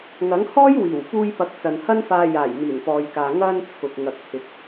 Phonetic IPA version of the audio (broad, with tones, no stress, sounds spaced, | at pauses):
ŋ ɐ˨˥ ŋ h ɔː˥ j w iː˨˩ w f uː˧ j p ɐ˨˥ k̚ t͡s ɐ˨ n h ɐ˥ n f aː˧ j aː˨˩ j n̪ iː˨˩ n p ɔː˨ j k aː˨ ŋ ɐ˧ n t͡sʰ ʊ˨ k̚ ŋ ɐ˨ k̚ h ɪ˨ k̚